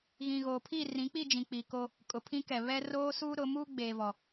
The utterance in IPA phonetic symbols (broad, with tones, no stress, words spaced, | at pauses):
ɣĩ˨ɣoː˨ pʰi˦˨rĩ˨˦k͡pi˦˨d͡ʒĩ˨ k͡pi˨ko˦ | kʼʊ˨pʰĩ˦kɛ˨ βɛ˦ roː˦suː˦ɾʊ˨˦ muː˦ɡ͡beː˨vɔ˨